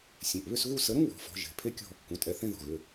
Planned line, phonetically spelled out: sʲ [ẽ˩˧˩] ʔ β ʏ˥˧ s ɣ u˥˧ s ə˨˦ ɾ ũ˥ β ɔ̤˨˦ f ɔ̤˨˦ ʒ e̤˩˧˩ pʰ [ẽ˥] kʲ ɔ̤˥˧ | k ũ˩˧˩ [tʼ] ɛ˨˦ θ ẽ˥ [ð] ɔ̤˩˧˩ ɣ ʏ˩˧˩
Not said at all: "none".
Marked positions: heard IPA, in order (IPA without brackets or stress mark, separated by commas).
ẽ˩˧˩, e˥, tʼ, ð